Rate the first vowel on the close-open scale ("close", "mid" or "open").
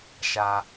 open